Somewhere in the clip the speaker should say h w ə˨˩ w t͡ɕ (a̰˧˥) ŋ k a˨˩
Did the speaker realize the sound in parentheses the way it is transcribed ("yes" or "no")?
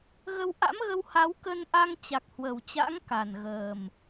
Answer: yes